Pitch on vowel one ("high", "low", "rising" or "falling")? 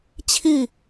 falling